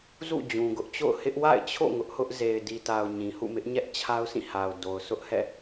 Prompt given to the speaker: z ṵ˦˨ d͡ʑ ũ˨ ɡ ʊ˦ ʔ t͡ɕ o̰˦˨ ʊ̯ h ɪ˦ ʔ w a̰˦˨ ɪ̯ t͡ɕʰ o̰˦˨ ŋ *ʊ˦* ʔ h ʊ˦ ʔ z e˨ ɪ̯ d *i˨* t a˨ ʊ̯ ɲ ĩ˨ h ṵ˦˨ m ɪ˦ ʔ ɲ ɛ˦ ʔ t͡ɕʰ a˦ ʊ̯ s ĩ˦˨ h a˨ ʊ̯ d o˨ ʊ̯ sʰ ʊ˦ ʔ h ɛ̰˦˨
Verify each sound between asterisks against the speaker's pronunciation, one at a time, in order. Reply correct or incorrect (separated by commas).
correct, correct